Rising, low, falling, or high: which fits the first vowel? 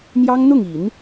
high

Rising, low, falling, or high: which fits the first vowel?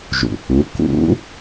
low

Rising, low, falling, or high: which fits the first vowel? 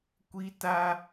high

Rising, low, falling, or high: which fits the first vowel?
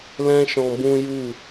high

